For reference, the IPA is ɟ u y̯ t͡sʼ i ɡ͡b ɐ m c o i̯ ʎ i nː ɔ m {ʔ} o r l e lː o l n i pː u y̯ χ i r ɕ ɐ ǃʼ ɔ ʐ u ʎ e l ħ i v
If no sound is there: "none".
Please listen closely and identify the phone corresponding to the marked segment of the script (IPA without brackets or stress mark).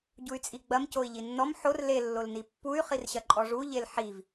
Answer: ħ